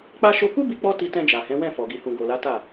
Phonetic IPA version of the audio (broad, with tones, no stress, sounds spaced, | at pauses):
k͡p a˦ ʃ o˧ k u˦ b i˧ k͡p ɔ˧ t i˧ t ɛ̃˧ d͡ʒ a˨ h ɛ̃˨˦ w ɛ̃˦˨ f ɔ˨ ɡ i˨ h ũ˨ ɡ o˨ l a˨˦ t a˦˨